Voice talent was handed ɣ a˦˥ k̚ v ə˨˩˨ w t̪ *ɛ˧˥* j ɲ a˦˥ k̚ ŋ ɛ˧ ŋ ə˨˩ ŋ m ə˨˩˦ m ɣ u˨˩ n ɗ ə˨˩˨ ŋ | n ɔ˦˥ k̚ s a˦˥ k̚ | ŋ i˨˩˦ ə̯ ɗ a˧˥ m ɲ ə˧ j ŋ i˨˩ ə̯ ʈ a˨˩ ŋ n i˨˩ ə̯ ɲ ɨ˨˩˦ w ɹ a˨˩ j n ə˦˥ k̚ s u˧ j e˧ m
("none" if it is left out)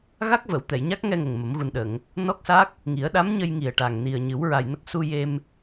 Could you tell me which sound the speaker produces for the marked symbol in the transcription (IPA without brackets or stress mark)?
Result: ɛ˨˩˨